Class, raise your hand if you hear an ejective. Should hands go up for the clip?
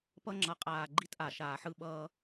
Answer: yes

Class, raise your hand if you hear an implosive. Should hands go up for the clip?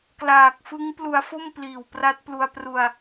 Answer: no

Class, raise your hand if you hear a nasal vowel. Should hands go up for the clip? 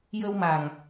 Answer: no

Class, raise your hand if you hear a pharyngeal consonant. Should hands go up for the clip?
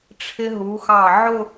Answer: yes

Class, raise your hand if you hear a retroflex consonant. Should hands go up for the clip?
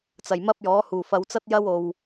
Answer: no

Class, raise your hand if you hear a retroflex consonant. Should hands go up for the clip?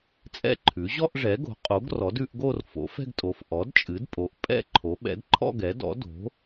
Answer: yes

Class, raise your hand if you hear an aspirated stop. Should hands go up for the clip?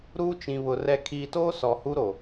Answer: yes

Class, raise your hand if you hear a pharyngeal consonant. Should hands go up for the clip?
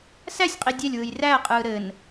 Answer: no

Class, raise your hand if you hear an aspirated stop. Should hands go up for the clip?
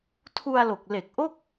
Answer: yes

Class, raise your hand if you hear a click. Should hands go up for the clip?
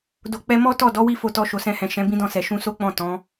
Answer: no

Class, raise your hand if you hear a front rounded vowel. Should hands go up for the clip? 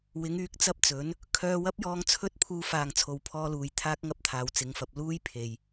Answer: yes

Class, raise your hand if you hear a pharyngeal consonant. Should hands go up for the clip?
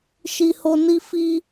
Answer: no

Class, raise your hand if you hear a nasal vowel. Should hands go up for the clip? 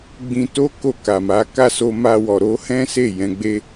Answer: yes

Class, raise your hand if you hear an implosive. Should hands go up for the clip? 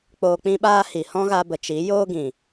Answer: yes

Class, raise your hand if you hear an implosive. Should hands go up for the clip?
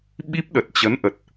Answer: yes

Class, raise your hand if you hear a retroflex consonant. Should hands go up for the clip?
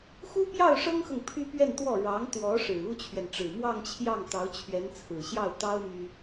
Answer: yes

